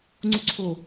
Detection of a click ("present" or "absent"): present